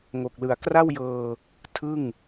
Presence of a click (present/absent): absent